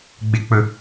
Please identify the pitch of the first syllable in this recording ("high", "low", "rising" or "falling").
low